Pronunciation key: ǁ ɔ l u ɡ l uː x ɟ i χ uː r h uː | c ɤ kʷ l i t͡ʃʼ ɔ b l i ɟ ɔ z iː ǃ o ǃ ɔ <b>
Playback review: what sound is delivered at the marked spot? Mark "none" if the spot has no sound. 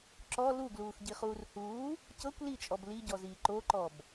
b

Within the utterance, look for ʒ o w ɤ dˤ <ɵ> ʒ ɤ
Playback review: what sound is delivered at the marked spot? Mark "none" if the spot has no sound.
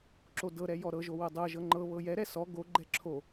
ɤ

